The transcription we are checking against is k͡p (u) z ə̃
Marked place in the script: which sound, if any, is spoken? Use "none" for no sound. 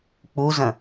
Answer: u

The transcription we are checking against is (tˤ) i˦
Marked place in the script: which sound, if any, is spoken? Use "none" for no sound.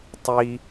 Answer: tˤ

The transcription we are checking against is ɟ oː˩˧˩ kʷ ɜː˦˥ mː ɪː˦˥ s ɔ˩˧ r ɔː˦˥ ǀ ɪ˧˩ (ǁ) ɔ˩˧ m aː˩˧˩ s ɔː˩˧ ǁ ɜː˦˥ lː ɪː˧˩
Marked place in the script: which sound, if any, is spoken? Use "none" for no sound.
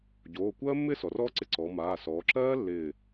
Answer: ǀ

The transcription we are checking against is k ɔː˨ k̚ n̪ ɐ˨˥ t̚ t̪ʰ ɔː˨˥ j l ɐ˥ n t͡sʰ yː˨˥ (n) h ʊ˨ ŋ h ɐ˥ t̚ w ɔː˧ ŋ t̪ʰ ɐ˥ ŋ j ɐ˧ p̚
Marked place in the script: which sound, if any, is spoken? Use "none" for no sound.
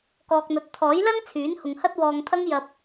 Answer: n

